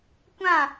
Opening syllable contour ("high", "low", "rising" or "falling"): falling